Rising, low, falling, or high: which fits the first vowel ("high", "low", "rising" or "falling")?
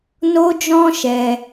high